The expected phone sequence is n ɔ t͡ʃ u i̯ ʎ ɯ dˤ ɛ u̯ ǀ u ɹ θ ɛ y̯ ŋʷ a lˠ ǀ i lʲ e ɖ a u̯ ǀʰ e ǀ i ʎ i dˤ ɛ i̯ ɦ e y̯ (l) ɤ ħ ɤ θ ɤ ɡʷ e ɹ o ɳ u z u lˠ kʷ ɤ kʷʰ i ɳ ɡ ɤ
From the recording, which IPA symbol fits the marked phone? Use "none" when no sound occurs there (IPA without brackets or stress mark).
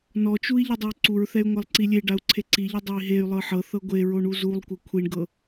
lˠ